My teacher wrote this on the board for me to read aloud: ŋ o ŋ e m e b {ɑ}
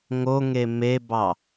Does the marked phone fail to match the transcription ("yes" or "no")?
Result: no